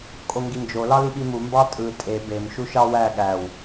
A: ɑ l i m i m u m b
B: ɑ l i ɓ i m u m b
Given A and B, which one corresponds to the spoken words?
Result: B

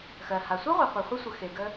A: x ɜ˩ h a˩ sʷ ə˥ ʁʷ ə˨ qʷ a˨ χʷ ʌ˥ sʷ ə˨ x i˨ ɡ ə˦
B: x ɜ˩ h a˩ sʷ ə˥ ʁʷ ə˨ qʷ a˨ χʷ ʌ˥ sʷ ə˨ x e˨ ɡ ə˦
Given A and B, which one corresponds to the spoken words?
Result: B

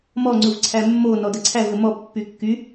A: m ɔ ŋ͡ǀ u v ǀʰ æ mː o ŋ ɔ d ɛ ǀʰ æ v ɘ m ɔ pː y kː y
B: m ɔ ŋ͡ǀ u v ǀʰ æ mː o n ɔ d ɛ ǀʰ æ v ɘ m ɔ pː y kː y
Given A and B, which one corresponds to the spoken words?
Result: B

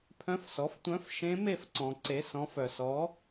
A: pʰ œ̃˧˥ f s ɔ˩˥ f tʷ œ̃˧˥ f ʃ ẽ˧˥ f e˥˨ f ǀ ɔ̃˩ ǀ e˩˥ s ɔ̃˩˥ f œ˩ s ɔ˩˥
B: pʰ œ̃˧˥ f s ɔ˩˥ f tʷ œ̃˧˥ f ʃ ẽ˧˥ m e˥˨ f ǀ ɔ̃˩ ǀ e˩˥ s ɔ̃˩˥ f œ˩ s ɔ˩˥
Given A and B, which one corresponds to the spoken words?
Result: B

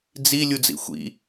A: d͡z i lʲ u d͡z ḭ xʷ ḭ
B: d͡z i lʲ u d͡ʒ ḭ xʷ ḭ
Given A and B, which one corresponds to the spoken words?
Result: A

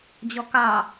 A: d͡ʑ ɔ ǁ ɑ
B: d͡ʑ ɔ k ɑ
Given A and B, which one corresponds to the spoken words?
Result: B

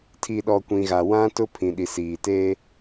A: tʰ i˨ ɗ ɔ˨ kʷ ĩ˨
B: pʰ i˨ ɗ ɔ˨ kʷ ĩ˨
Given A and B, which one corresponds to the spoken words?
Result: A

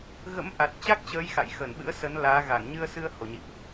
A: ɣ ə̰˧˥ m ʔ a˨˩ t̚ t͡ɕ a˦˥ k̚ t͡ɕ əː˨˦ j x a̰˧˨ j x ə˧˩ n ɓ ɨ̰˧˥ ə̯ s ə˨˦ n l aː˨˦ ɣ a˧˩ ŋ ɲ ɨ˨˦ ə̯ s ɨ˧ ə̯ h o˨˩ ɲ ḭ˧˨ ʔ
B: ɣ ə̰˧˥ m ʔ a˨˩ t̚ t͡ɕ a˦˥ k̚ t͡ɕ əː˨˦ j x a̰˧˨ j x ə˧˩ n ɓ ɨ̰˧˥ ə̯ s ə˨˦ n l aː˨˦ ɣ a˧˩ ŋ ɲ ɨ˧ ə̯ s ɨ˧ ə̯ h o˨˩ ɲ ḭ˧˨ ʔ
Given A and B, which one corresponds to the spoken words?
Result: B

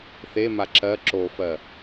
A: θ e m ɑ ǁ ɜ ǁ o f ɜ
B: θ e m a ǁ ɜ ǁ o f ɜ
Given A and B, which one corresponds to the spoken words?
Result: B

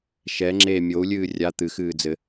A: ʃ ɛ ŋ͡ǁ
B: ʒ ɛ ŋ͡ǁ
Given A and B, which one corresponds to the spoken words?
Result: A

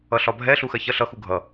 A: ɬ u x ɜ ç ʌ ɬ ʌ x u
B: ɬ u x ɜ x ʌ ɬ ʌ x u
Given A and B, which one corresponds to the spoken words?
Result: A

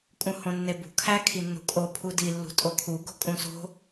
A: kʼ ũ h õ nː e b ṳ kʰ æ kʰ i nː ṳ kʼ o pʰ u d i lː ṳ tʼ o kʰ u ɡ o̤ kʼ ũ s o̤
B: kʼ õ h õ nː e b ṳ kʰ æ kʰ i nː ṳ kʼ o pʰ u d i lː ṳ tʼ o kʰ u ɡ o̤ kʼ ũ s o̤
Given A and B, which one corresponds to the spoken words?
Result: A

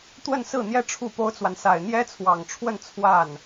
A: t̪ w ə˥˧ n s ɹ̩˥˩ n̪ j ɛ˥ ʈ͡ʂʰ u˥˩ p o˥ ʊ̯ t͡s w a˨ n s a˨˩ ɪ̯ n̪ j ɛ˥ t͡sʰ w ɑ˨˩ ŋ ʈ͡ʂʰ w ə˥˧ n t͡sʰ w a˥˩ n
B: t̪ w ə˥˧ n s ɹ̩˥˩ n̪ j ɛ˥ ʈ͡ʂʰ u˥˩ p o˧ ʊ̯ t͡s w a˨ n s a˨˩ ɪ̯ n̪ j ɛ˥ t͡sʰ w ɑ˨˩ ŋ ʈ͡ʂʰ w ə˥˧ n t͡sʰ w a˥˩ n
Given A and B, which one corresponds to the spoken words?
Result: A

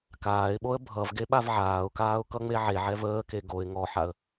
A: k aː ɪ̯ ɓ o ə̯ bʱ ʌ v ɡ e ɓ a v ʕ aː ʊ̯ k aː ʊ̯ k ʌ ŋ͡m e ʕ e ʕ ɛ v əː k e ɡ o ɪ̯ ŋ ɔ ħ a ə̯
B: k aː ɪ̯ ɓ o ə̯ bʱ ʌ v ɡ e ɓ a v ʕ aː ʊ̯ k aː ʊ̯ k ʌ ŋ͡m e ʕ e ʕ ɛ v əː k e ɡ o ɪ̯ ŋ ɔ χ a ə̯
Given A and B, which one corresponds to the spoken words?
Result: A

